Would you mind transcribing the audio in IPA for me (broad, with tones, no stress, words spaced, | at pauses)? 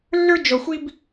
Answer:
lːə˞˥ d͡ʒɔ˧xʷi˥b